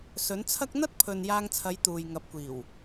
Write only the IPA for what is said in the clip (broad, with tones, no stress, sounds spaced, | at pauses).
s ɵ˨˥ n t͡sʰ ɐ˥ k̚ n̪ ɐ˥ t̚ pʰ ɵ˨ n j aː˧ ŋ t͡sʰ ɐ˨˧ j t̪ uː˨ j ŋ ɐ˨˥ p̚ kʷ iː˨˩ w